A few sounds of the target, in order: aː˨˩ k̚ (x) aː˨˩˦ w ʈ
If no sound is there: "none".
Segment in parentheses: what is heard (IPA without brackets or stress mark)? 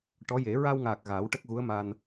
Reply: ɣ